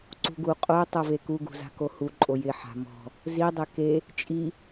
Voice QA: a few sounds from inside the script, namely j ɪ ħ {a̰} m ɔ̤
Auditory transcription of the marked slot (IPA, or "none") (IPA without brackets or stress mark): a̤